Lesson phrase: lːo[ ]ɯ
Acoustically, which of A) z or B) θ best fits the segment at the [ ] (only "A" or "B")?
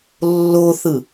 B